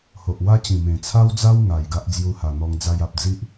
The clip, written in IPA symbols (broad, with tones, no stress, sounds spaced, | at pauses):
h o˨ ʔ w a˦ t͡ɕ ĩ˨˩ m ẽ˨˩ t͡sʰ a˦ w d͡z a˦ w ŋ a˨˩ j ɡ a˦ ʔ d͡z j u˧ h a˨˩ n̪ ɔ˧ ŋ d͡z a˧ j a˨ p̚ d͡z i˦ ʔ